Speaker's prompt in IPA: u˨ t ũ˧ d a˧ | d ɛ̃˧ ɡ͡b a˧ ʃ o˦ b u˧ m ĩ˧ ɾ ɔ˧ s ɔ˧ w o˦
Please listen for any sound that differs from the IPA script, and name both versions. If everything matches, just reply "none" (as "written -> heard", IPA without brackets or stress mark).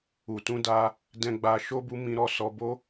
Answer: w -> b